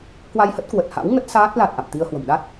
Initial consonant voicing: voiceless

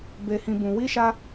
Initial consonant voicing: voiced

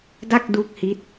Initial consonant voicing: voiced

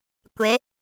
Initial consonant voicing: voiceless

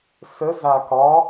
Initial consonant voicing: voiceless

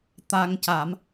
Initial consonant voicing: voiceless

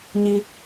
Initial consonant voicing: voiced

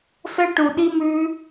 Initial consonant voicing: voiceless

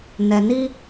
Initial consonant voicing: voiced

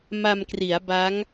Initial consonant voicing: voiced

